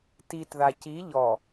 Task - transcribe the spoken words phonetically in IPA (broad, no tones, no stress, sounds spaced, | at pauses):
t i t ð a c i ʎ ɔ